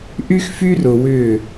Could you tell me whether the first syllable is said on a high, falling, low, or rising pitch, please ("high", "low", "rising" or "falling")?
high